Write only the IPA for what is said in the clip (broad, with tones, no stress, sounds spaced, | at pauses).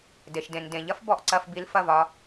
d e˨ ʃ d ẽ˨ n d ẽ˨ ʎ ɐ˦ f b ɔ˧ ʔ ǀ ɐ˧ f b i˧ l f ɐ˦˨ v ɒ˧